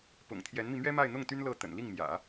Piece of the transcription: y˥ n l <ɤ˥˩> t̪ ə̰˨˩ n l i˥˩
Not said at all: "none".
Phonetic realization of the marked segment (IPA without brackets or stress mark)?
ɤ˥˩